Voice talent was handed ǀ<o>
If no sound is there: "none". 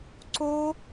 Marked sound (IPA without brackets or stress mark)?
o